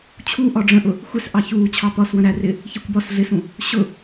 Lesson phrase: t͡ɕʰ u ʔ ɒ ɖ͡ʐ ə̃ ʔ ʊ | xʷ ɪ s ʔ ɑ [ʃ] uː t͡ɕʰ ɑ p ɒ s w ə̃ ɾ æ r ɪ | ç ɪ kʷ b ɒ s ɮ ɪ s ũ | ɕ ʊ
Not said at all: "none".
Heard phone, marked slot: ç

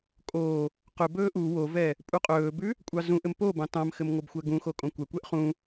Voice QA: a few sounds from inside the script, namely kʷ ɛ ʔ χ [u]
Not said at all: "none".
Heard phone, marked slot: ũ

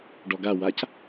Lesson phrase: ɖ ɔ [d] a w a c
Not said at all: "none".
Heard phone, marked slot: ɡ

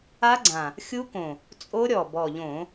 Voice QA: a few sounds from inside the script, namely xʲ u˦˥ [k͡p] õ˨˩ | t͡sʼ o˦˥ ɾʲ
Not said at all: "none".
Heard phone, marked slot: k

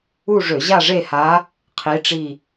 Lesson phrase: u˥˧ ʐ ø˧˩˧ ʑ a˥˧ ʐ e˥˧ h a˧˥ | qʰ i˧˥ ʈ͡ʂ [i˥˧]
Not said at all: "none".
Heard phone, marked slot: i˥˧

